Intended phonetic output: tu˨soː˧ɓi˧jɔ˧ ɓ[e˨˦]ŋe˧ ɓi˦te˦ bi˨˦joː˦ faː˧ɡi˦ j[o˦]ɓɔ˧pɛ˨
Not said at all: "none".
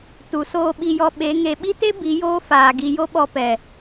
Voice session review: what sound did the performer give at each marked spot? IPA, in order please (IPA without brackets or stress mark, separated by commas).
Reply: e˨˦, o˦